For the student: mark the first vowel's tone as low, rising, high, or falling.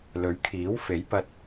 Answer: rising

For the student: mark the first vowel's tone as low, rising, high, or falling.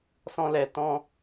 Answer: high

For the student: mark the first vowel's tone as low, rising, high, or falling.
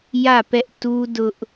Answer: falling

